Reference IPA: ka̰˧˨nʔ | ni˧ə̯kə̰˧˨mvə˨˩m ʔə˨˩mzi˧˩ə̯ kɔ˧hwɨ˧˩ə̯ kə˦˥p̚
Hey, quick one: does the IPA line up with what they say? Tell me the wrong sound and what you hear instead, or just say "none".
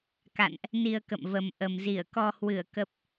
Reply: none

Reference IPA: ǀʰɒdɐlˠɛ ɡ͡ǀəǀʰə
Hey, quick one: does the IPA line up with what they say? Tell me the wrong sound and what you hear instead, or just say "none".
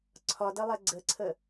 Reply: none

